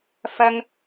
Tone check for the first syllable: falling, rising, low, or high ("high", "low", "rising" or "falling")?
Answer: high